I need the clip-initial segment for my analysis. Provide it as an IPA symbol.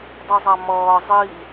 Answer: dˤ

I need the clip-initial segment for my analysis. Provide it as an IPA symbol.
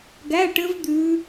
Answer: ɡ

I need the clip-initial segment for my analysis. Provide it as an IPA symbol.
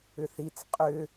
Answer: ʏ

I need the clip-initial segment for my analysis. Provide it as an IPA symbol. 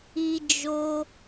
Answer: i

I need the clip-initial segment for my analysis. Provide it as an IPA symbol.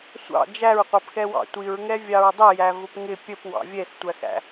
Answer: sʷ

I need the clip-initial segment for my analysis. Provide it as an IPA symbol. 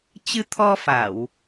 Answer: t͡ɕ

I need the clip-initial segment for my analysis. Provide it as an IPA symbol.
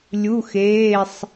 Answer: lʲ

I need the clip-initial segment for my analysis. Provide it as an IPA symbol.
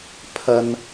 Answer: pʰ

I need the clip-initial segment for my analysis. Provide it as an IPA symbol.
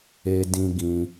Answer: e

